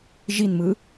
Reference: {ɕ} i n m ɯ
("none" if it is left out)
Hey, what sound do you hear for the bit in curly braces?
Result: ʒ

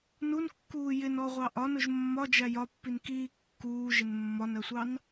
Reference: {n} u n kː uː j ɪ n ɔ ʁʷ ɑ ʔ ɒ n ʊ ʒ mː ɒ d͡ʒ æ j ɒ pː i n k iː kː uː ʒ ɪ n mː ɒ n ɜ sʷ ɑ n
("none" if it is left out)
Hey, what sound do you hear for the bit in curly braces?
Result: n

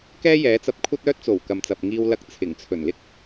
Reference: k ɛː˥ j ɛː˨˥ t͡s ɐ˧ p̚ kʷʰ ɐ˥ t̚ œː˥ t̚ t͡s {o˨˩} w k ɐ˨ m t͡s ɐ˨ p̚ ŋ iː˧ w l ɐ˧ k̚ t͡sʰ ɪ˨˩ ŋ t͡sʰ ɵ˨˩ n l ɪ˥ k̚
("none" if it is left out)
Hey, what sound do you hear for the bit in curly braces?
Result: o˨˩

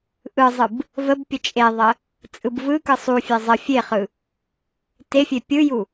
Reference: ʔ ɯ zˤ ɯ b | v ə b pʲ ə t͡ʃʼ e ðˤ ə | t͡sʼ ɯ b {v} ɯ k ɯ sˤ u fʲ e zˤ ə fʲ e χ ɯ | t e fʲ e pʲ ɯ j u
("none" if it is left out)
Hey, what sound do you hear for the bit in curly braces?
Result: v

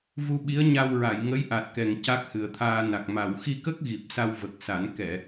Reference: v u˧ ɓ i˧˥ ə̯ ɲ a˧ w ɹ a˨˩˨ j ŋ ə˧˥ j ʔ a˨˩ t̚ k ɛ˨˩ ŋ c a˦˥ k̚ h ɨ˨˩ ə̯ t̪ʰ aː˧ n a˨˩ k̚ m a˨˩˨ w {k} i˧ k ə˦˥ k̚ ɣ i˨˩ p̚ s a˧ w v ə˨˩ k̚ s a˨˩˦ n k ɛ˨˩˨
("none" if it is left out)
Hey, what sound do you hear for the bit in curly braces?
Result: x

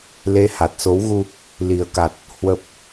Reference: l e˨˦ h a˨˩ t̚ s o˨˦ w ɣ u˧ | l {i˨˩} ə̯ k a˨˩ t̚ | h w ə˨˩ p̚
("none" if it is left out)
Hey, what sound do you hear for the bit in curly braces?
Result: i˨˩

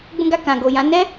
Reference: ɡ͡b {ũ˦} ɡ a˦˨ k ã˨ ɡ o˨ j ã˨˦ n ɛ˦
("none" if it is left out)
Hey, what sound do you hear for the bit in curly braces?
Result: ũ˦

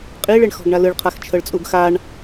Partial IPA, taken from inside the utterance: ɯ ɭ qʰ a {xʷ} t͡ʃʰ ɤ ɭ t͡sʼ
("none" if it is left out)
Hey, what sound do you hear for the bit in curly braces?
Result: x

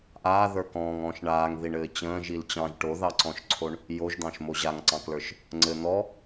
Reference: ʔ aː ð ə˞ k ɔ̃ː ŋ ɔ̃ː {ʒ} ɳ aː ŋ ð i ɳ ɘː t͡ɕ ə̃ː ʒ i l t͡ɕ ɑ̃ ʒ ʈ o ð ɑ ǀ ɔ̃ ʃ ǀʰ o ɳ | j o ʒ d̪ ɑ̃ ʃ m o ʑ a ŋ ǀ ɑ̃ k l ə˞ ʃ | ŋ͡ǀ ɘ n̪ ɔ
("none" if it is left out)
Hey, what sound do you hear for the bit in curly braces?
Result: ʃ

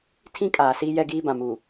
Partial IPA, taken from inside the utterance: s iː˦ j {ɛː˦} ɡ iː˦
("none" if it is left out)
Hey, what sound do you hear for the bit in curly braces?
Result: ɛ˦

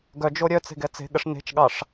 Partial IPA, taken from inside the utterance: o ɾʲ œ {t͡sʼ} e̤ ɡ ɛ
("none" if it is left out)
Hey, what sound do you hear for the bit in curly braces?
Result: t͡s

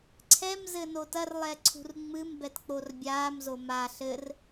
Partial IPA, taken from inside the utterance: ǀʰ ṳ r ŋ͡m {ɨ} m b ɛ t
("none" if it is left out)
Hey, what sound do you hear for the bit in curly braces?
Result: ɨ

